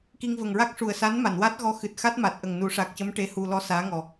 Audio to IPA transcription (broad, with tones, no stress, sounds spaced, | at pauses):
k i˧ ŋ v ə˨˩ ŋ ɹ a˦˥ k̚ ʂ u˨˩ ə̯ s a˧˥ n m a˨˩˨ n w a˦˥ t̚ ɣ ɔ˧˥ x ɨ˨˩ t̚ x a˦˥ t̚ m a˨˩ t̚ ʔ ə˨˩ ŋ n u˨˩˦ ʂ a˨˩ k̚ c ə˧˥ m ʈ e˧˥ h u˧ l ɔ˧˥ s aː˧˥ ŋ ɔ˨˩